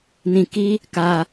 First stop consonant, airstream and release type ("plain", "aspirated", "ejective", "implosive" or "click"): plain